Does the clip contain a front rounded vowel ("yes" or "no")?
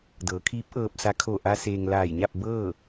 no